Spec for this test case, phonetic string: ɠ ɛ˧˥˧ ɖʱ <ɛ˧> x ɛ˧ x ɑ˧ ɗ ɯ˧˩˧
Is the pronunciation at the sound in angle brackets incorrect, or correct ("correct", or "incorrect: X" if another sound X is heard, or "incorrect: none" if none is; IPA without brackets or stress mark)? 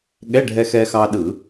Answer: correct